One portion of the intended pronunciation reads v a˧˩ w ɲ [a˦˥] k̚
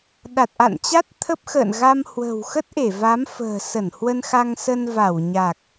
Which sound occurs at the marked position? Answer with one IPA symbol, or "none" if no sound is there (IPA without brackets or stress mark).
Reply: a˨˩